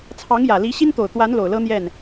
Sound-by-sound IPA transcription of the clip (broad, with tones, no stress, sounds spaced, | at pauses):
t͡sʰ ɑ˧˥ ŋ j ä˨˩ l i˧˥ ɕ i˥ n t̪ o˨˩ ʊ̯ t̪ w a˧˥ n l o˨˩ ʊ̯ l ɤ˥ n̪ j ɛ˥˩ n